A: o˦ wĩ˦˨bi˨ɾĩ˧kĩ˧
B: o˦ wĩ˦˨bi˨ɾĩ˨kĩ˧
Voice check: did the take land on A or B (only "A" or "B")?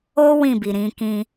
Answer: A